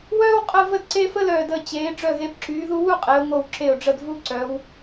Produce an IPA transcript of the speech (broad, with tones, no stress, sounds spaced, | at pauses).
w œː˥ w qʼ ə˥˧ v ə˥ d ǀ eː˥ f ə˥ l œː˧˩ d əː˧˩ t͡ɕ eː˩˧ ɖ͡ʐ œ˧˩ ɣ e˩˧ b ǁ yː˩˧ ð u˧ w u˥˧ qʼ e˩˧ ʊ̯ ŋ o˧˩ w ǁ e˧˩ ʊ̯ ɖ͡ʐ ə˧˩ d v u˧ ǀ œ˩˧ w